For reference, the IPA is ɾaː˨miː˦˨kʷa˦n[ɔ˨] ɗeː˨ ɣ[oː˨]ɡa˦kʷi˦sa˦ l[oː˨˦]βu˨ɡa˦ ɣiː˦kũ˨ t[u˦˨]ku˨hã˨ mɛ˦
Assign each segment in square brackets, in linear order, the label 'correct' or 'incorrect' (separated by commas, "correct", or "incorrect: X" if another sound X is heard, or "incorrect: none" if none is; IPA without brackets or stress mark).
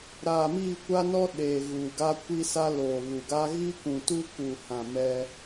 incorrect: ɔ˦, incorrect: uː˨, incorrect: oː˨, incorrect: u˦